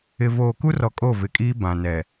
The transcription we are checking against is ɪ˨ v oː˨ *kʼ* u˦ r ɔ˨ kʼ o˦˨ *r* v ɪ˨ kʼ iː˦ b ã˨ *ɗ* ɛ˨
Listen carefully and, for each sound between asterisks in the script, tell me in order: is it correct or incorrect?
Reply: incorrect, incorrect, incorrect

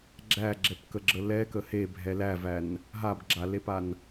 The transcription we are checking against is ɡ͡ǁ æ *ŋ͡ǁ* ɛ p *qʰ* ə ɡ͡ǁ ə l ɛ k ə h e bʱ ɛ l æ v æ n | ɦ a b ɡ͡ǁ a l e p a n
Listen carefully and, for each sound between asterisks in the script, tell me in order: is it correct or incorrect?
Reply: incorrect, incorrect

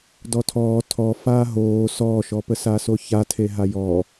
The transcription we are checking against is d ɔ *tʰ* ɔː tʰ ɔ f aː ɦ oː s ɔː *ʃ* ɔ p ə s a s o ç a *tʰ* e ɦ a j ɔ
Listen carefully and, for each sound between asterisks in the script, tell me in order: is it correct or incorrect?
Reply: correct, correct, correct

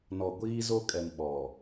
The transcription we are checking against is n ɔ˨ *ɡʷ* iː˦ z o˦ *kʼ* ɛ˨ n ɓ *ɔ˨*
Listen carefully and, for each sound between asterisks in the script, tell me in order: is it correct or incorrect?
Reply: correct, correct, correct

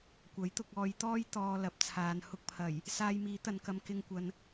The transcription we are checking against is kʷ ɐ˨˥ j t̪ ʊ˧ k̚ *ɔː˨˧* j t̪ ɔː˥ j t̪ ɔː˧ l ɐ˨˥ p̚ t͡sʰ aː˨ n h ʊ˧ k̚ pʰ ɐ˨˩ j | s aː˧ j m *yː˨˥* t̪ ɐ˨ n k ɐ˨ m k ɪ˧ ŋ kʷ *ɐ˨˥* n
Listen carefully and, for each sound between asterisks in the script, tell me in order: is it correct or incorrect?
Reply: correct, incorrect, incorrect

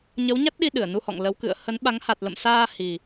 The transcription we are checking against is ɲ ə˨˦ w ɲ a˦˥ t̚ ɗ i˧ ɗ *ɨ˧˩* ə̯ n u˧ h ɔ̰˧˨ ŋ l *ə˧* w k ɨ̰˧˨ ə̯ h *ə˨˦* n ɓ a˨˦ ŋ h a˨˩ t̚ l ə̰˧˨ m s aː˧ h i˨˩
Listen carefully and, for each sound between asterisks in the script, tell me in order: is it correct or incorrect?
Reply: correct, incorrect, correct

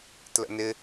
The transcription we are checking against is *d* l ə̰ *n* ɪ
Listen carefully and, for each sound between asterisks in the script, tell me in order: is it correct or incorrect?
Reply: incorrect, correct

